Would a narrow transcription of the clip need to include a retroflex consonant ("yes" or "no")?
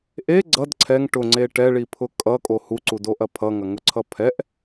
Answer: yes